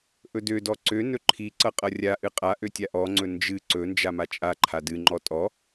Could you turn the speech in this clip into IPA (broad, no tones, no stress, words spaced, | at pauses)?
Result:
ʔɵdødɔ ǀø nɵǃʰiǀʌ qʼʌrʲaʔɨ qʼa ʔøtʲaʔɔŋ͡ǀɵ nd͡ʒɨ ǀɵnd͡ʒa mat͡ʃʼaǃʰa dɨŋ͡ǃɔ tʼɔ